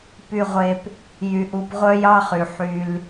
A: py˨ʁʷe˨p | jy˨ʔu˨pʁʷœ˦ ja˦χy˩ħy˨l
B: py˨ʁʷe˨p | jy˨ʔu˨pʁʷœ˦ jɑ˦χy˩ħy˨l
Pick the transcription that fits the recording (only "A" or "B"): B